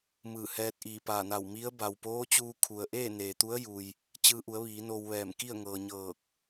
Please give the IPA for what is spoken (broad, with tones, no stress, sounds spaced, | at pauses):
m ɯː˧˩ h ɛː˧ t̚ ʔ iː˧˩ p aː˧˩ n a˧˩ w m i˧˥ ə̯ b a˩ w p oː˧˥ t͡ɕ uː˧ kʰ u˩ ə̯ ʔ eː˥˨ n eː˩ t̪ u˧˥ ə̯ j u˩ j | t͡ɕ ɯː˧ ʔ u˩˧ ə̯ ʋ iː˩˧ n o˧ w ʋ ɛː˧˩ m k i˥˨ ə̯ ŋ ɤː˩ ɲ ɤː˧˩ k̚